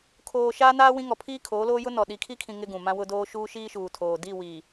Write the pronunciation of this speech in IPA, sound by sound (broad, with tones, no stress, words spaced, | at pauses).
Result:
kʰoː˨ ʃaː˦naː˦ wĩ˦ŋɔ˨ pʰiː˦kʰoː˨˦loː˦ jʊ˦nɔ˨ ɗi˨kʰi˦kʰĩ˨ ŋɪ˦ɡũ˨ mã˦wʊ˦doː˦ ʃuː˦ʃiː˦ʃuː˨tʰoː˨ di˦˨wi˨